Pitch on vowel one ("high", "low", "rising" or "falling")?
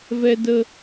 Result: high